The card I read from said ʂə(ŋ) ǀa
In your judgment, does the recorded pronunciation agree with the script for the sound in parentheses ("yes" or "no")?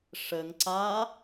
yes